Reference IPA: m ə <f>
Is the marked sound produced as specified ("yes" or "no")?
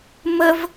no